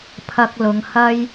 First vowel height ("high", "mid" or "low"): low